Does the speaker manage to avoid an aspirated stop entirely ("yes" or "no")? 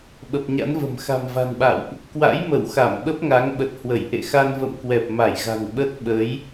yes